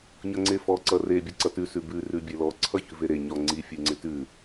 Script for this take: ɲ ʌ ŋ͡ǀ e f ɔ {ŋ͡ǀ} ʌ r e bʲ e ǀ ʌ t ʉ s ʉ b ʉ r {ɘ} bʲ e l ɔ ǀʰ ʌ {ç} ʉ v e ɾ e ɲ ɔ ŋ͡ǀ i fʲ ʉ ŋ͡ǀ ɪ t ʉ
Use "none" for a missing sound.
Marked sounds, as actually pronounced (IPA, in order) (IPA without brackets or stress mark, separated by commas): ǀ, ʉ, ç